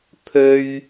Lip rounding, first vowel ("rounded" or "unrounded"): rounded